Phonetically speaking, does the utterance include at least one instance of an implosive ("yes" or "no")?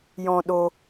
yes